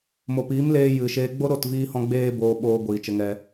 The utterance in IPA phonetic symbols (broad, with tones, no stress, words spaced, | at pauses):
mo˨piː˨˦mleː˧ jɨ˨ʃeː˧ ɡ͡bo˦ɾo˦˨tviː˧hɔ̃˧ ɡ͡beː˦boː˧ɓoː˧ ɡʷiː˨t͡ʃə˧ŋɛ˧